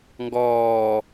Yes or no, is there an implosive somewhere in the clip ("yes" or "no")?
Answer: no